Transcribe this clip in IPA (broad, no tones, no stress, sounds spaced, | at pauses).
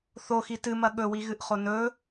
θ o x i t ɨ m ɐ ɠ ɵ w i ɣ ɨ ʔ χ o n ɵ